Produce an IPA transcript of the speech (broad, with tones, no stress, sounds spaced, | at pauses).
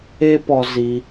e˦ p ɔ˧ z i˧